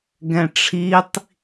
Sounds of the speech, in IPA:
ɡɛ̃ʈ͡ʂʰitˤ

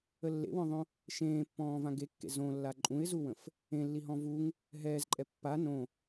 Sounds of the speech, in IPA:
əlːḛwɔ̃ðˤõ | ʃẽːpːɔ̃ː vãɡekːḛ zõ lːaǃʼũɪ̯zuwə̃f | ẽlːiɦɔ̃ vuŋ | ɦɛːzǃʼɛ pːa nõ

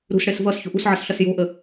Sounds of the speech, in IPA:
ɾṳsɽes vʌs ço̤ʔṳsʕʌs ɬʌsjo̤ʔə

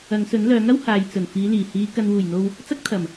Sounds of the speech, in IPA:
ɐ˨˧ŋsɵ˨˥nlœː˨˥ŋɐ˥w haː˨j t͡sɵ˨˩nfiː˨˧liː˨˩hiː˨˧ kɐ˨nwuː˨˩jn̪o˨w | t͡sɐ˥k̚t̪ʰɐ˨˩m

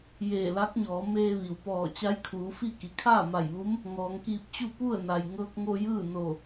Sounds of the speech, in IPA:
jeː˧˩la˧˥k̚ɲɔː˩˧ meː˧ʋi˩wpɔː˧˩ t͡ɕa˧˥jkʰuː˩˧fi˥˨ ki˩kʰaː˥˨ma˧˩jʋu˧˥m | ŋɔː˩˧ŋkiː˧p̚t͡ɕu˥˨ pu˥˨ə̯na˩j ŋɤː˧k̚ŋo˧ jɯː˥˨no˧˩

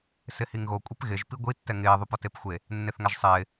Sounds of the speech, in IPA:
sɪhiŋɣo kʷʼepɣɪʒ piɡʷi tːɛŋɪː ðˤupɔtepxʷe | nːeθŋaʒsˤɪː

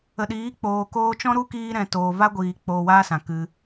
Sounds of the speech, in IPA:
ə˨ɗiː˨˦k͡poː˨ koː˧t͡ʃɔ̃˦ɾu˦kiː˧ ɾɛ̃˨toː˨va˦ɡʷiː˨ k͡poː˨waː˧ sã˨ kɨ˧

